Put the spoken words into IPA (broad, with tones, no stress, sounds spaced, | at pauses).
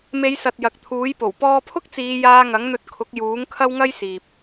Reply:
m e˨˧ j s ɐ˨ t̚ j ɐ˨ k̚ t̪ʰ uː˨˥ j p o˨˩ w p ɔː˧ pʰ ʊ˥ k̚ t͡s iː˨˧ j aː˧ ŋ ɐ˨˥ ŋ n̪ ɵ˧ t̚ kʰ ʊ˨˥ k̚ j uː˨˥ ŋ kʰ ɐ˥ w ŋ ɐ˥ j s iː˨ p̚